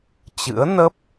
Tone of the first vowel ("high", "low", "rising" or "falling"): rising